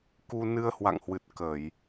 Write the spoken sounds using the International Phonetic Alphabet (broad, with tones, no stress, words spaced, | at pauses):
ku˧ nɨ˧ə̯hwa̰˧˨ŋhwɨ˨˩t̚ kə˧˩˨j